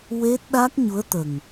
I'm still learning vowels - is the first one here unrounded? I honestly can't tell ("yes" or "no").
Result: yes